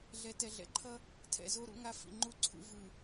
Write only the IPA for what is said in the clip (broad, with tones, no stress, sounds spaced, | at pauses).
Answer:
ɮ ɛ˨ t ɛ˨ ɮ ɛ̰˨ ǃʰ ʌ˦ | tʰ ɛ̰˨ z o˦ ɾ ṵ˦ ŋ a˦ f ḭ˨ ŋ͡ǃ u˦ ǀʰ ṵ˨ v ɯ˨